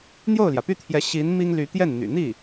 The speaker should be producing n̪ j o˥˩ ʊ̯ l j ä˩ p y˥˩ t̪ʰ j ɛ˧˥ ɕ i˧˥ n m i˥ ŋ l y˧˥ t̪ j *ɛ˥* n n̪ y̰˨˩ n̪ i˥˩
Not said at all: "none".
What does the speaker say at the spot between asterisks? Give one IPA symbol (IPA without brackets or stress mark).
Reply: ɛ˥˩